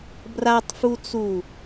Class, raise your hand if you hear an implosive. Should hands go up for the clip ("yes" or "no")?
no